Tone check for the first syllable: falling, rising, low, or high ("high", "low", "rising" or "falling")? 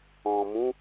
low